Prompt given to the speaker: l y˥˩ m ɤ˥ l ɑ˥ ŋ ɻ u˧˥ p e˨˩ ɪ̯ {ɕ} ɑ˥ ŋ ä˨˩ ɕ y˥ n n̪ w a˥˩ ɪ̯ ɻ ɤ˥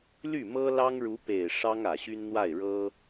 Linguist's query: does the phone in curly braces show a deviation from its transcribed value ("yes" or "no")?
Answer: yes